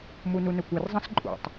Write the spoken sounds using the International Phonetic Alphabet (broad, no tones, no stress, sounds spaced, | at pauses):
m u n u n ɵ kʷ ɐ r zˤ ɐ̃ s ǃʼ ṵ tˤ